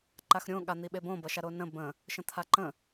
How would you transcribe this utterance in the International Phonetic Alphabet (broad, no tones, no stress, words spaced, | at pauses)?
ǃaxɾʲõ ɠan̪iɓebõ bʌʃaɾonə̃ bə̃ | ʃə̃t̪ʰaǃə̃